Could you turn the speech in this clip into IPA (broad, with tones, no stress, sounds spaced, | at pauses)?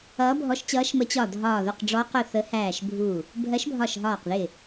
ʌː˨˥ bʱ ɔ˨˥ ʃ t͡ɕ ʌː˨˥ ʃ m ə˨˥ t͡ɕ ɒ˧˩ dʱ ɒː˧˩ ð ʊ˧˩ q ɖ͡ʐ ɔ˨˥ q ʊ˧˩ θ ə˨˥ h æː˧˩ ʃ bʱ u˧˩ | bʱ ɜ˨˥ ʃ bʱ ɒ˧˩ ʃ ɦ ɒː˧˩ q ð ɪ˧˩